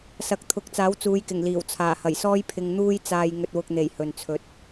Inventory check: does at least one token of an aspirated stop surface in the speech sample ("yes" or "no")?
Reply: yes